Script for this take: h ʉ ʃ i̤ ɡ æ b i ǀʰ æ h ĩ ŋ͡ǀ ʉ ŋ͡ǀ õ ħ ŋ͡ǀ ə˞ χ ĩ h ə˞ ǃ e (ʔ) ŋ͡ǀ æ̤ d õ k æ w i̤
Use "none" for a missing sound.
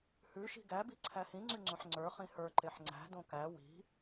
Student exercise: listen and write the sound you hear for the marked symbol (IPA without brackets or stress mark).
ħ